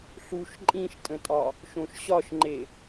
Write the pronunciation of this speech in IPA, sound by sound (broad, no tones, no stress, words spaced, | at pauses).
ɬuʃ ǃʼĩʃtʼə̃tʼɒ | ʃõʃɕɒʃŋ͡ǃe